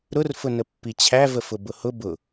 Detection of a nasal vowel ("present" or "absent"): absent